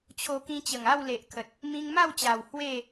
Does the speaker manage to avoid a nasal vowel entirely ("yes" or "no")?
no